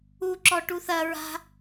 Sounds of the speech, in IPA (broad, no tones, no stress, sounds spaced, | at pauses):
u ǁ ɔ ʈ u θ ɐ ɹ a̤